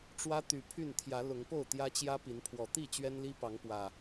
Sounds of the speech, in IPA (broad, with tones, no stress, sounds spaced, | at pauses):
ʈ͡ʂ w ä˦ t̪ y˨˩ pʰ y˥˨ n t̪ʰ j ä˨˦ l ʊ˨˦ ŋ p o˥˨ ʊ̯ t̪ j ä˦ t͡ɕ j ä˦ p i˨˦ n pʰ w ɔ˨˩ t̪ i˥˨ t͡ɕ ɥ ɛ˦ n l i˦ p ɑ˨˦ ŋ p w ä˨˩